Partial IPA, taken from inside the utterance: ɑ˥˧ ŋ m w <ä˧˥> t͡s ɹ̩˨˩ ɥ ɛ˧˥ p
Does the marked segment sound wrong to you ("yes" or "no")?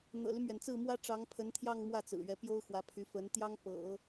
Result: yes